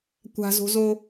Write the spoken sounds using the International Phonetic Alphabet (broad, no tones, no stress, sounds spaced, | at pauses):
kʷ a̤ z o̤ z o